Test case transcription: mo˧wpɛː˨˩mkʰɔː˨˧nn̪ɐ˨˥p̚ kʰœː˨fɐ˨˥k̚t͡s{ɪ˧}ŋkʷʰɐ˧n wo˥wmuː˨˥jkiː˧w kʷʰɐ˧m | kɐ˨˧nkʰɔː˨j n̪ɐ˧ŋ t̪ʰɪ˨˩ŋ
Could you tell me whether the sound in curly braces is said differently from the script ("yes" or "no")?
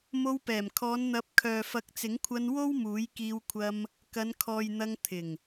yes